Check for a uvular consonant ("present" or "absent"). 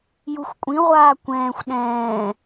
present